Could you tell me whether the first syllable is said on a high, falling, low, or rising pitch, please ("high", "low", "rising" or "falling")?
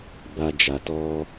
high